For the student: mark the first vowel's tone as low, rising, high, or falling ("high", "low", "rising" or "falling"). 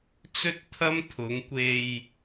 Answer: high